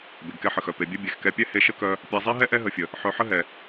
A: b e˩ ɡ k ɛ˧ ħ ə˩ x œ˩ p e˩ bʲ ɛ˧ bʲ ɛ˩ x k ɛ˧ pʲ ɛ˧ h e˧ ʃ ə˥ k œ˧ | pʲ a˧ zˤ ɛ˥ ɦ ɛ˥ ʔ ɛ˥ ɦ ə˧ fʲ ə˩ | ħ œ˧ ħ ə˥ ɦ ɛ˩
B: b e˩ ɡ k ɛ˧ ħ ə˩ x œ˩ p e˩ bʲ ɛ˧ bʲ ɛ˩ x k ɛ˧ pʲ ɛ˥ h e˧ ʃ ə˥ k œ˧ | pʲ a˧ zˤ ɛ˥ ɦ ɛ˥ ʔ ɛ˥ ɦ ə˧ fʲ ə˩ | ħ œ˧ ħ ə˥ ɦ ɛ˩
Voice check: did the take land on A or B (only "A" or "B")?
B